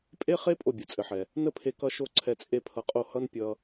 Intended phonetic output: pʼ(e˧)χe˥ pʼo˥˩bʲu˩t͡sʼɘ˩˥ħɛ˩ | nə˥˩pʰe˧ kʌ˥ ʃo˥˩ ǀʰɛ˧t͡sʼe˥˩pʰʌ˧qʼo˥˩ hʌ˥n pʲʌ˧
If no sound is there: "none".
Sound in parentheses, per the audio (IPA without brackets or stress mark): e˥